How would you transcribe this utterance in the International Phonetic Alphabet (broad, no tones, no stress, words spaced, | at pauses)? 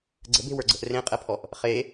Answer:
ɡ͡ǀə̤be̤wə˞ɡ͡ǀə̤ʔ rẽqʼɛpʰɔʔ | χe